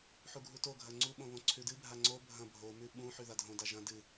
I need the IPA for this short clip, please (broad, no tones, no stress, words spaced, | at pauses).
ħuɡʱutoɡʱɐ ŋ͡ǀuɓõ βõǀʰʉdɨbʱa ŋ͡ǀo bʱɐ̃ bʱomʉ ɓũħʉ ðadʱõda ʒɐ̃ dɨ